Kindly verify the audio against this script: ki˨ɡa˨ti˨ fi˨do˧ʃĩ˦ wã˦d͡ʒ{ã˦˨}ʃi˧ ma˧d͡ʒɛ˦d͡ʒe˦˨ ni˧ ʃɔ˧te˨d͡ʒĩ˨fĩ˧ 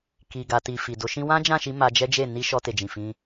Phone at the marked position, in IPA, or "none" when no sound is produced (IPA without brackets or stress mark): ã˦˨